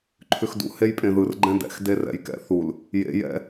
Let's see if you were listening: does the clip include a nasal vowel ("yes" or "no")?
yes